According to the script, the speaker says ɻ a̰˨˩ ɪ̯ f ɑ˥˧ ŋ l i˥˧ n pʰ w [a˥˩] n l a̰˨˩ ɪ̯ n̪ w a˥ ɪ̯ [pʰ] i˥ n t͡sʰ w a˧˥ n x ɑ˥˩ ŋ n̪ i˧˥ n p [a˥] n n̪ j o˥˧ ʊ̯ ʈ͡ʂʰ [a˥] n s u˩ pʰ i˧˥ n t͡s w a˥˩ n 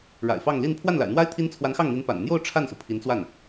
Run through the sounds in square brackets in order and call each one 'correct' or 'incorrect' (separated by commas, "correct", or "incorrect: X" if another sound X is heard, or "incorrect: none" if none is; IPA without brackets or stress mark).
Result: correct, incorrect: t̪ʰ, incorrect: a̰˨˩, incorrect: a˥˩